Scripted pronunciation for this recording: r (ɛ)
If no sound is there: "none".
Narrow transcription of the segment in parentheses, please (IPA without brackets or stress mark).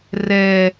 ɛ